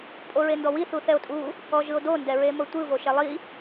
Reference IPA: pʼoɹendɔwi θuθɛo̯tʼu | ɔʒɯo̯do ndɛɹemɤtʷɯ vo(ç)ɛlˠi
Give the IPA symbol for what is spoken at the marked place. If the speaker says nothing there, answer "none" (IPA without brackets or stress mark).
ʃ